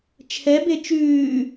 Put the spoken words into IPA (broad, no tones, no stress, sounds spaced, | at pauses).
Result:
t͡ʃʰ ɛ b e t͡ʃ ʉː